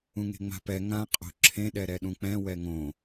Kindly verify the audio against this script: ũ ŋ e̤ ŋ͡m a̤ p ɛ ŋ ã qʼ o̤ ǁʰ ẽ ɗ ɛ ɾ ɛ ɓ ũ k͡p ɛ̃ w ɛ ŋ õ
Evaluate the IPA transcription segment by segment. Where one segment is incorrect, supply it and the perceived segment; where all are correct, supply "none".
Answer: ɓ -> ɗ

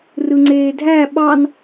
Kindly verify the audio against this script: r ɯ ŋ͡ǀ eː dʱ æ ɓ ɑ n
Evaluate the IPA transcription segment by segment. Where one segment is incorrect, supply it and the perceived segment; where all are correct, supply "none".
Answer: none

